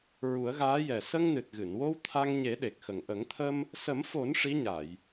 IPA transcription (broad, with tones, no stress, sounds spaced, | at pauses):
ɹ u˨˩˦ ə̯ ɣ aː˧˥ j ɛ˨˩ s ə˧ ŋ n ɨ˨˩ t̚ ɣ ɨ˨˩˨ n w o˧ w t̪ʰ a˧ ŋ ɲ e˨˩˦ ɗ e˨˩ k̚ x ə˨˩ ŋ ʔ ə˨˩˦ ŋ t̪ʰ ə˧ m | s ə˨˩˦ m f o˨˩˦ n ʂ i˧˥ ɲ a˨˩˨ j